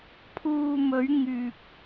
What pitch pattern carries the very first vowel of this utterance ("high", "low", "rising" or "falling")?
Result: low